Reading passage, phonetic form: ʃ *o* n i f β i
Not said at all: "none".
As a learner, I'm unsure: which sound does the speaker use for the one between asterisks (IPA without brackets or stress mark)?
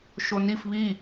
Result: o